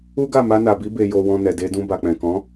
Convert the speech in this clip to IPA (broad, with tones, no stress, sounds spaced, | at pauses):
u˦ ɡ a˦˨ m a˧ n a˨ b i˧ b e˨ j o˨ w ɔ̃˨ n ɛ˨ d e˧ d ũ˧ b a˨ k͡p ɛ̃˨ k ɔ̃˨˦